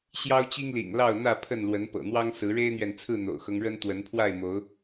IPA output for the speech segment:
ɕ j ɑ˦ ʊ̯ t͡ɕ i˦ ŋ l ḭ˨˩ ŋ l ɑ˥˨ ʊ̯ n̪ ä˥˨ pʰ ə˥˨ n l w ə˨˦ n p ɤ̰˨˩ n̪ w ɑ˦ ŋ s ɹ̩˨˦ ɻ e˦ ɪ̯ n̪ ɥ ɛ˨ n t͡sʰ ɹ̩˥˨ n̪ o̰˨˩ ʊ̯ x ɤ˦ ŋ ɻ ə˦ n t̪ w ə˨˦ n pʰ w a˥˨ ɪ̯ m o˨˦ ʊ̯

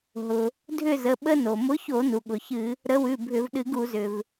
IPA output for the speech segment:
ɦ ʊ˩ | dʱ ʏ˦˨ z ə˩˧˩ ɓ ə˦ n o˩ m ʊ˨˥ ç o˧˩˧ n u˩ ɠ ʊ˩ ç ɨ˧˩˧ | ɾ ə˨˥ w ʉ˩˧˩ bʱ ʏ˧˩˧ v ɗ ɨ˧˩˧ ɡ u˧˩˧ z ʏ˩ v

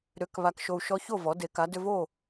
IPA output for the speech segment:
ɾ ʏ˩˥ k β a˧ k ʃ o˧ u̯ ʃ ɔ˧˥ ç o˥˩ v ɔ˩˥ d e˩˥ k a˩˥ d ʏ˧ v o˥˩

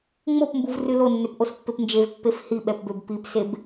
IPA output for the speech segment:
ŋ͡m o p m b u v r ɨ l o nː ø p ʔ o s pː e p n d͡ʒ e v pː e f h i ɓ ɛ p b ø b p i p s e b

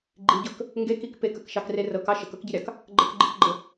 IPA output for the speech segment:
ɡ͡ǃ i ɟ ɤ k | ŋ ɡ e k i k p e k ə k ʃ ɑ k r e r ɤ k ɑ ʃ ə k ɤ k ɟ i ɾʲ ɑ k | ɡ͡ǃ ə k ɡ͡ǃ i k ɡ͡ǃ ə

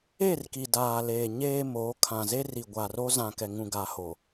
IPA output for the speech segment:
e˦˨ r k i˨ d aː˨ l eː˨ ɲ eː˨ m oː˨˦ kʰ ã˨ z e˦ r i˨ ɡʷ a˨ r o˦ z ã˨ k ɛ˨ ŋ ũ˨ ɡ a˨ h o˨

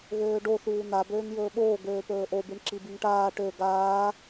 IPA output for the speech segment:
ɣ øː ɖ o θ uː n̪ a b øː ŋ j ɵː ɓ oː ɡ øː p ɵː ʔ o b i ɳ ǁ i b i ŋ ʈ aː ʈ ø ɡ aː

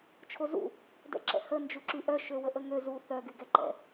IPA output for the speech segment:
t͡ʃʰ o z ṵ | d ɛ̰ ǁ ɛ̰ h ə n d͡ʒ u ǁ y ʔ œ ʃ ø w ə ʔ ə ŋ ø z u θ œ ɡ y ɡ ɛ ǃ ɛ̰

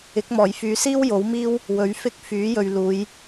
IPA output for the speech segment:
ɪ˨˥ k̚ m ɔː˨˩ j f yː˨˧ s iː˥ w j o˨˥ w m iː˥ w | w ɵ˨˥ ɥ f ɪ˥ k̚ f yː˨˥ j ɵ˨ ɥ l uː˨˧ j

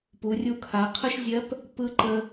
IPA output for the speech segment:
p u˩˧ rʲ u˧ kʰ a˩˧ qʰ ə˥ ʃ zʲ ɜ˧˥ p | p ɯ˧˥ ǃ ə˧

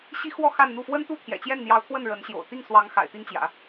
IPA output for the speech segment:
ɕ i˥ x w ɔ˥˧ x a˥˧ n n̪ u˥˩ f w ə˥ n t̪ u˥˩ t̪ʰ j ɛ̰˨˩ t͡ɕ j ɛ˥˩ n n̪ j ɑ˧˥ ʊ̯ t̪ʰ w ə˥˩ n ɻ ə˧˥ n ɕ j o̰˨˩ ʊ̯ t̪ i˥˩ ŋ s w ɑ˧˥ ŋ x a̰˨˩ ɪ̯ t̪ i˥ ŋ t͡ɕ j ä̰˨˩˦

